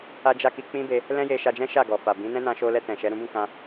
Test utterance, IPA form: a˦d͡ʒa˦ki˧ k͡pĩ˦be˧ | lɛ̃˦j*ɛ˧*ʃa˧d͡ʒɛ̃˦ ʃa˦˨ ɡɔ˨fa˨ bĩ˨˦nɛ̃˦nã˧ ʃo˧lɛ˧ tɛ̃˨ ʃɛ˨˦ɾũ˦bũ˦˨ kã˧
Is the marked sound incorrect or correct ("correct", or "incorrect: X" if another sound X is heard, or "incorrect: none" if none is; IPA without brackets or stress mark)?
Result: incorrect: e˧